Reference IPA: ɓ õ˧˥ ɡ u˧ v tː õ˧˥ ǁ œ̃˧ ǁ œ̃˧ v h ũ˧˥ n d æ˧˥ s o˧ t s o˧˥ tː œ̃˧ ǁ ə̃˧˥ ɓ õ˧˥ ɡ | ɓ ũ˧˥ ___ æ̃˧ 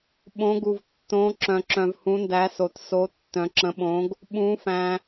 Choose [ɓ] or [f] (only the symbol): f